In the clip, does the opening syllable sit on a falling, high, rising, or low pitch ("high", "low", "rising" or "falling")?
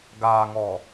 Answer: low